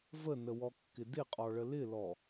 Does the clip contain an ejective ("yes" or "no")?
yes